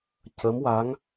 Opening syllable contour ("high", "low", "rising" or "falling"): rising